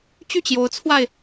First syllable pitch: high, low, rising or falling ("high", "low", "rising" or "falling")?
falling